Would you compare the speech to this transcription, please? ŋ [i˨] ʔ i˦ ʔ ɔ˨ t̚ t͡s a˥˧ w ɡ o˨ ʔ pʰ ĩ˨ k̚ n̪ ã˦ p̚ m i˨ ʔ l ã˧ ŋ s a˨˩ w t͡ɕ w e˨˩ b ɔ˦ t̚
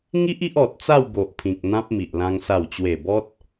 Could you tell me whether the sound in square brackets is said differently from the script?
yes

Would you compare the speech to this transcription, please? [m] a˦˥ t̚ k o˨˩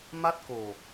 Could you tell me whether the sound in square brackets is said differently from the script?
no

